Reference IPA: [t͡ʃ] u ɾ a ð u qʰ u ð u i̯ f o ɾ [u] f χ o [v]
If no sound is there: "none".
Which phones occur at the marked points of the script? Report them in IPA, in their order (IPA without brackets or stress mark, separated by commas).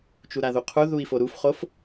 t͡ʃ, u, f